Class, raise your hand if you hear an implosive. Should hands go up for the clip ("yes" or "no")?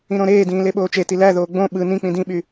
yes